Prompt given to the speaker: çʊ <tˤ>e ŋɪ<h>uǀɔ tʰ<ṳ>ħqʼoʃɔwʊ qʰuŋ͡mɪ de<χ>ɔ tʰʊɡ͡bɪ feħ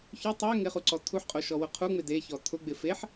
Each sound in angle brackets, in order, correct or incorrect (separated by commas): correct, incorrect, incorrect, incorrect